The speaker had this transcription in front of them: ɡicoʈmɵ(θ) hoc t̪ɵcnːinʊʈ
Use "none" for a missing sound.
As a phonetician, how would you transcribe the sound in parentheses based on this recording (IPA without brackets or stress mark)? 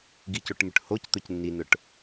ʈ